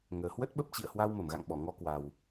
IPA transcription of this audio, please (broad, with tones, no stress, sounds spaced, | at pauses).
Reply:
ŋ əː˨˩ h w ə˦˥ t̚ ɓ ə˦˥ p̚ t͡ɕ ḭ˧˨ ə̯ h w a˧ w m ə˧˩ m ɣ a̰˧˨ ŋ ɓ ɔ˧˩ ŋ ɔ˧ k w a˨˩ w